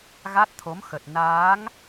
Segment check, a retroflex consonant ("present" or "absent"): absent